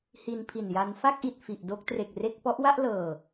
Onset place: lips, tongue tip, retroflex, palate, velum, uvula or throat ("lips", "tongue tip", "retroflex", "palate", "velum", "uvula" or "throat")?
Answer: throat